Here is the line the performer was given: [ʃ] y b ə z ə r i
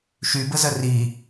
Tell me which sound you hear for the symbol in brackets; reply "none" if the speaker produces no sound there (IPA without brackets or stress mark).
ʃ